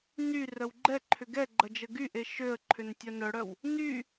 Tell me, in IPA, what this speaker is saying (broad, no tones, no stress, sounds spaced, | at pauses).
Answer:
n y r œ w ɡ͡ǃ ɛ ǃʰ ʏ ɡ ɛ ɡ͡ǃ ɐ d͡ʒ ə ɡ y ʔ e ʃ ø ə̯ ǃʰ ʏ n tʲ œ n œ ɽ œ w | n y